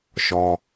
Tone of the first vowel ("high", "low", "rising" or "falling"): high